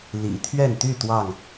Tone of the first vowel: low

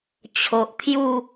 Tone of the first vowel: low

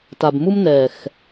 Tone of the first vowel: low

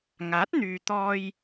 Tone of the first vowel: rising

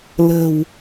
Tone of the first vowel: low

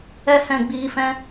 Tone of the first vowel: high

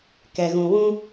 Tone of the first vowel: low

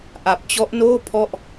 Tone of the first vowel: low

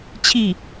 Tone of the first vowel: falling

